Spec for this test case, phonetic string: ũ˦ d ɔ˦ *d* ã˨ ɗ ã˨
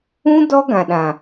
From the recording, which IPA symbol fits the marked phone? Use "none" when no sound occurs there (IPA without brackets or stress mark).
ɡ